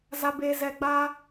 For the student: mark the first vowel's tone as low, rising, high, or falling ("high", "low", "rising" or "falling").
low